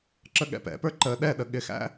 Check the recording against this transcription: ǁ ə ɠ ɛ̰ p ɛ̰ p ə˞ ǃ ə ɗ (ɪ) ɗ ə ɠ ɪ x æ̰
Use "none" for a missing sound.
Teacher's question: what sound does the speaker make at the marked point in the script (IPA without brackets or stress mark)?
ɛ